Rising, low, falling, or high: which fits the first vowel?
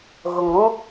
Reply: low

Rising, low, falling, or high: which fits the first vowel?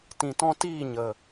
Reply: low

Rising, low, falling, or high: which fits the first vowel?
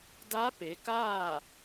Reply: rising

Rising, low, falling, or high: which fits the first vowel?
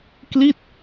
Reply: falling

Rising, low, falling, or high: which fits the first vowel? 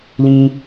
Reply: high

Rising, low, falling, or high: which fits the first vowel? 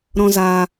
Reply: high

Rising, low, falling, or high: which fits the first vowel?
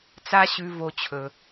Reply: high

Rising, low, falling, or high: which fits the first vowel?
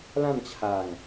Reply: falling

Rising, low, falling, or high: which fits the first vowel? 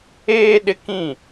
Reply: high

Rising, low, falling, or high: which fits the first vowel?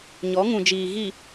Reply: rising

